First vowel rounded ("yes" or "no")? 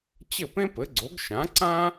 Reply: no